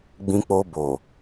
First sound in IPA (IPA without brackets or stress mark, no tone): ɡ͡b